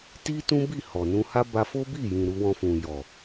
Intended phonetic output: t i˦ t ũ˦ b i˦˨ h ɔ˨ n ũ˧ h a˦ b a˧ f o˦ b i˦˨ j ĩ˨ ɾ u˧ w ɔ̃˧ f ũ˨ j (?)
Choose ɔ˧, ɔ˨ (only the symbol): ɔ˨